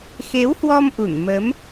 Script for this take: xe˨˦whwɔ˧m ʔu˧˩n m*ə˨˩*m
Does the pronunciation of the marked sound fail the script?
yes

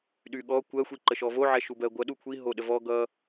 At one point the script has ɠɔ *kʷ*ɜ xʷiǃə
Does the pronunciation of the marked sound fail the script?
no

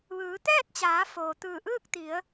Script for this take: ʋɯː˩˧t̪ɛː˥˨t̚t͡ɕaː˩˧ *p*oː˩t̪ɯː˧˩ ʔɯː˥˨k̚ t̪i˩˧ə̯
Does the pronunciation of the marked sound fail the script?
yes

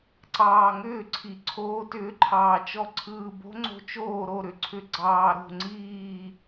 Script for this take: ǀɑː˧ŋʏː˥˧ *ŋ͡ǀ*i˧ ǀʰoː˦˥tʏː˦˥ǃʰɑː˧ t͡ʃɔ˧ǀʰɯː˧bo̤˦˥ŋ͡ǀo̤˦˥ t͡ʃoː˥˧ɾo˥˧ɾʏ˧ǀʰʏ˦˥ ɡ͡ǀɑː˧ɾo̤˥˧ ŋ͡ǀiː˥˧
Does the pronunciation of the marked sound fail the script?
yes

